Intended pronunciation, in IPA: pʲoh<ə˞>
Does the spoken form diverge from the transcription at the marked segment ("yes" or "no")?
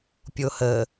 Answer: yes